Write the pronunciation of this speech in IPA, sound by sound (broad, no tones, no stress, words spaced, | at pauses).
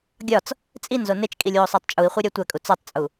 ɡʲɒt͡s | t͡sʼinzo net͡ʃkʼilʲwosˤætˤ t͡ʃʼui̯χʷeɾʲæ tʷækʼu t͡sɒtˤt͡sʼu